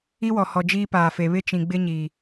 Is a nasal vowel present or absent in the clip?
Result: present